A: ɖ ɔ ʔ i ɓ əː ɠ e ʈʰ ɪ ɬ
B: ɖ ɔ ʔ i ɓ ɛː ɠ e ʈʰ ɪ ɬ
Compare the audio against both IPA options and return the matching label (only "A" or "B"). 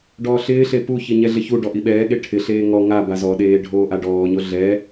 B